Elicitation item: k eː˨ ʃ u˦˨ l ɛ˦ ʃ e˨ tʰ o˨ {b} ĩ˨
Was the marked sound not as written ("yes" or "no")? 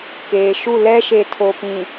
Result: yes